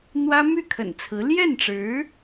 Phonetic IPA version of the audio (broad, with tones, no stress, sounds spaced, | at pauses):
n̪ w ä˥ m y˥˩ kʰ ə̰˨˩ n t͡sʰ ɹ̩˧˥ l j ɛ˥˩ n ʈ͡ʂ ɻ̩˧˥